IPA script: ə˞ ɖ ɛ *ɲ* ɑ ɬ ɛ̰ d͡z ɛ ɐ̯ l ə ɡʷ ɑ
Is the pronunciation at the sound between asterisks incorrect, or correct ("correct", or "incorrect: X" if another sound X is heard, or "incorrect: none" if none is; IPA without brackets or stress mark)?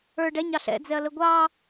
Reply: correct